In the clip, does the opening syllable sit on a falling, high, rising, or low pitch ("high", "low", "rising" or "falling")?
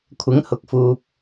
rising